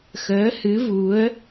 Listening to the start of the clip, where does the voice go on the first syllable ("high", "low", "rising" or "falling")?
rising